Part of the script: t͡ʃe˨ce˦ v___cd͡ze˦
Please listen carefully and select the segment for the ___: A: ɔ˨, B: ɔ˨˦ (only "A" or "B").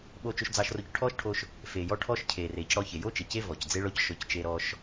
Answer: A